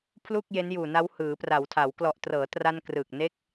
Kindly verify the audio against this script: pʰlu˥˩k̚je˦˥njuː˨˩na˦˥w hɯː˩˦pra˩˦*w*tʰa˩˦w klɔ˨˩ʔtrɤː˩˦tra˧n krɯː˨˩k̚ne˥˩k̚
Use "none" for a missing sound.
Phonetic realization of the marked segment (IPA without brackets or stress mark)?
w